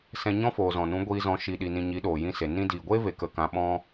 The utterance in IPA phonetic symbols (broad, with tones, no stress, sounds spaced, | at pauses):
s ɛ̃˧ ɲ ɔ̃˦ f oː˨ z ɔ̃˨ n ũ˨˦ ɡʷ iː˧ z ɔ̃˨˦ ʃ i˧ ɗ i˧ n ĩ˧ ɲ i˨˦ ɗ oː˨ j ĩ˧ s e˨ n ĩ˧ d iː˨ ɡʷ eː˦ v e˧ k ə˧ k ã˧ ɓ ɔ̃˦